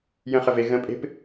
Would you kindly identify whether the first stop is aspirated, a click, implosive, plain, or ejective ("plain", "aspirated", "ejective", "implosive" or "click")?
ejective